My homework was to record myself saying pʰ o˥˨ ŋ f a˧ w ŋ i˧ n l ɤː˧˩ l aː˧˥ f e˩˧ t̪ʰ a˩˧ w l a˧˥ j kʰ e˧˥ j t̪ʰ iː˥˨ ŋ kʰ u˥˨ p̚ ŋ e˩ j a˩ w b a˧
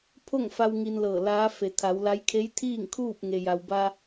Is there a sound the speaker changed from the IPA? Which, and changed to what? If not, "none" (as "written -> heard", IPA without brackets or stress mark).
u˥˨ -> uː˥˨